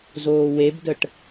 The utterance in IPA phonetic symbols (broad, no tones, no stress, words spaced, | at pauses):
zoːwebdəʈ